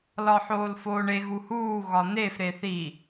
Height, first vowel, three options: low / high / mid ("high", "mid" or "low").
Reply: low